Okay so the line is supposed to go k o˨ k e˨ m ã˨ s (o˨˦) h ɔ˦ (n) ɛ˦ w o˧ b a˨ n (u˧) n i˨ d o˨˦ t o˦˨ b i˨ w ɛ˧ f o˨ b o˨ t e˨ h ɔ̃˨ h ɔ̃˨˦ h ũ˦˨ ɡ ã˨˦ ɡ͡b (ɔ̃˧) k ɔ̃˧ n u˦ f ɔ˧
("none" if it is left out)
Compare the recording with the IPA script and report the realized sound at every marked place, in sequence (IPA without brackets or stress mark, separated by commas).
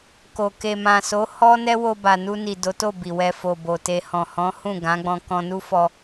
o˨˦, n, u˧, ɔ̃˧